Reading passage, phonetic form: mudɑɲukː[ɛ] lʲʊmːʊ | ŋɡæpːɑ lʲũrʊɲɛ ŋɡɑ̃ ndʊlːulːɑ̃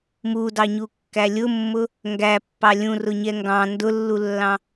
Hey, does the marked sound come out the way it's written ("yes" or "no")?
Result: no